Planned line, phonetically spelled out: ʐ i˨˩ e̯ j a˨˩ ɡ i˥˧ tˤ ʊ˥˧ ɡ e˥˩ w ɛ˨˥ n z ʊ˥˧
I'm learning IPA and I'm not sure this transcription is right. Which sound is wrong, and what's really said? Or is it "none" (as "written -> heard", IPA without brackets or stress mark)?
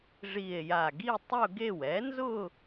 none